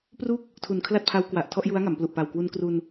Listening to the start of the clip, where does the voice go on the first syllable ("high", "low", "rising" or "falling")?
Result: falling